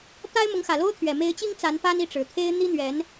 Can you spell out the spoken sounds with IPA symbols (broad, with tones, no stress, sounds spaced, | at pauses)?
t̪ a˥ ɪ̯ m ʊ˧˥ ŋ x ä˨˩ l o˥ ʊ̯ t̪ʰ ɥ ɛ˨˩ m e˧˥ ɪ̯ t͡ɕ i˥ ŋ t͡s a˧˥ n p a˥ n i˥˩ ʈ͡ʂ ɻ̩˨˩ t̪ʰ e˥ ɪ̯ n̪ i˥ n̪ ɥ ɛ˧˥ n